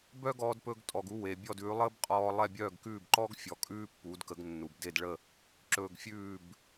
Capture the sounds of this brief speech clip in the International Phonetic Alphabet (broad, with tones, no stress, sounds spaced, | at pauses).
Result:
b œ˥ ɡ ɔː˧ d p ɵ˧ ɡ tʼ ɔ˩ ɡ u˧ w e˩ bʲ ɔ˥˩ d ʉː˩˥ lˠ əː˥ b qʼ ɔː˧ lˠ ɛ˥˩ bʲ œː˥˩ ɡ k ʉː˥˩ b ǃ ɔ˥ ɡ fʲ ɔ˩˥ kʼ ʉː˥ pː u˩˥ d k ə˩˥ ɡ nː u˩ b d e˥˩ d ɭ ə˥˩ | ǁ ɵː˧ ɡ fʲ ʉː˥˩ b